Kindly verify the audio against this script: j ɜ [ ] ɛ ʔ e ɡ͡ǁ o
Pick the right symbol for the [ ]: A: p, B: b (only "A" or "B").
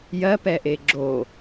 A